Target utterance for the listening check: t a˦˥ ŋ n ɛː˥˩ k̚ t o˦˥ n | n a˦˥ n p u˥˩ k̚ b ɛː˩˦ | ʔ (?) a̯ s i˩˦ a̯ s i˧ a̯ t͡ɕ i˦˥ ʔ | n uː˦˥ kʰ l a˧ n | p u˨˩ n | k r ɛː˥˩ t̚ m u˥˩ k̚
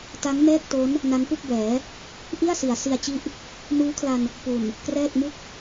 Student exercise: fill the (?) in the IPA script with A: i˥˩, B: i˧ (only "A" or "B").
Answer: A